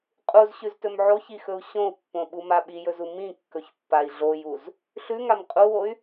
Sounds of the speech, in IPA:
qʼ u z ɕ ʉ z t ɵ m ʕ o ç i x ɵ u̯ ɕ õ u̯ pː õ ɓ u m a ɓ i j ɵ z u m ĩ kː ɵ ç pː a i̯ ɮ o j u z | ɬ ʉ ŋ a m qʼ u w o y̯

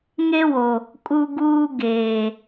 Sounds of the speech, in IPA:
ŋ e˦ w o˨ | kʼ u˦ ɡ uː˦ ɡ eː˨

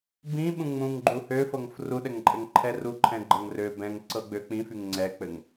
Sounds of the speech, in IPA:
b ĩ ɓ ũ ŋ͡m ũ ŋ ɡ͡ǃ u h ø f ɤ ŋ f r u ɗ ɛ ŋ ǃʼ ɘ ŋ ǃʰ ɛ r u ǃʰ ɛ̃ ɡ͡ǃ ɤ ŋ r ø b ɛ̃ ŋ ǀ ɤ ɡ͡b ø k͡p ĩ f y ŋ ŋ͡ǀ ɛ k͡p ɘ ŋ

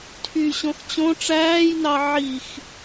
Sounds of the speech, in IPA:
tʰ y ɕ õ x t͡ɕ õ ʈ͡ʂ æː j n ɑ ʕ i x

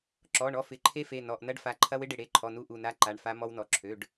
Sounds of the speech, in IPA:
ǁ ɔ˩˧˩ ɳ ɔ˦˥ f ɪ˩˧˩ ǃʰ e˦˥ f e˩˧˩ n ɔ˩˧˩ ʔ n ɐ˦˥ ɖ f a˩˧˩ ǃʰ ɐ˦˥ w ɪ˦˥ ɖ ɪ˩˧˩ ɽ e˩˧˩ ǃʰ ɔ˩˧˩ n u˦˥ ʔ u˩˧˩ n a˦˥ ǃ a˩˧˩ ɳ f a˦˥ m ɔ˦˥ w n ɔ˩˧˩ ǁʰ ø˩˧˩ ɖ

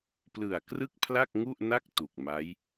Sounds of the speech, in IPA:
p l ɯ˨˩ a̯ k r ɯ˥˩ k̚ pʰ l a˥˩ k̚ ŋ u˥˩ ʔ n a˥˩ k̚ t u˨˩ k̚ m a˦˥ j

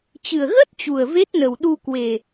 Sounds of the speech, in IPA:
t͡ɕ ɨ˨˩ ə̯ ɣ ə˦˥ t̚ t͡ɕ u˨˩ ə̯ v e˦˥ t̚ n ə˨˩ w ɗ u˧ k w e˨˩

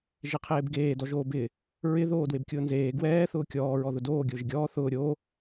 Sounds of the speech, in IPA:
ʒ e qʰ eː b ɡ eː d ɔ ʒ oː b ɪː | ɹ ɪ ð oː d w e b kʲ ʊː n z eː ɡ w ɛː θ ʊː kʲ ɔː ɹ ɔ ð ʊ d oː ɡʲ ʊː ʒ ɪ ɡʲ ɔː θ ʊː ɾʲ oː

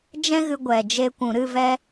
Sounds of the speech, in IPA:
d͡ʒ ɛ̃˦ ɣ ɨ˧ ɡʷ ɛ˨ d͡ʒ e˧ kʷ ũ˨ ɾ ɨ˦˨ v ɛ˦

